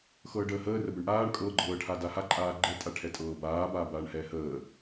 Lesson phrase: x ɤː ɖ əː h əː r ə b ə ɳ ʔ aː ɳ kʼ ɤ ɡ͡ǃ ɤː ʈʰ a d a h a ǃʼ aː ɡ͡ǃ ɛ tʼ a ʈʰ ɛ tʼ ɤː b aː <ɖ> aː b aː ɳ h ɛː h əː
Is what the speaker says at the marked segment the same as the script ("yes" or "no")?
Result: no